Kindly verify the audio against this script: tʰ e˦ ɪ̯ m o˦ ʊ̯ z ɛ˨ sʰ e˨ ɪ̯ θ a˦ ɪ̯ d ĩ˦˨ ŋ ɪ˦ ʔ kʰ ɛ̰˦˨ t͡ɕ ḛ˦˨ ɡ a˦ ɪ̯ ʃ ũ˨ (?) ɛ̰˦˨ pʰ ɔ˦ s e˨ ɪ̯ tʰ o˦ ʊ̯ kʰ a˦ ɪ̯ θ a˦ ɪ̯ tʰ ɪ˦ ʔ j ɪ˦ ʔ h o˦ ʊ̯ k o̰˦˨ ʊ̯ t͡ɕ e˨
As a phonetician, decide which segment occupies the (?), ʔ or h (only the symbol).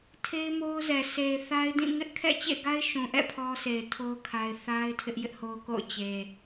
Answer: ʔ